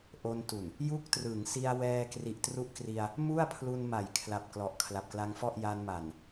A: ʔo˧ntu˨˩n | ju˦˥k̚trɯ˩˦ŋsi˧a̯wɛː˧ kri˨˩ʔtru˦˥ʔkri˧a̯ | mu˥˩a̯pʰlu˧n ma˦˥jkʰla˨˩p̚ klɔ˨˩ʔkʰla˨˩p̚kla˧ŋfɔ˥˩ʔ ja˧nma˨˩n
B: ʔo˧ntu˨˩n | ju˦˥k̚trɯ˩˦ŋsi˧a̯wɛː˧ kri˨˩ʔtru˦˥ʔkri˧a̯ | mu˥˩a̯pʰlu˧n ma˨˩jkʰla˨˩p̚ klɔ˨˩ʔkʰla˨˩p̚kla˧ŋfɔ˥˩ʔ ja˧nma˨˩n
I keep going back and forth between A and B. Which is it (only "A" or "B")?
B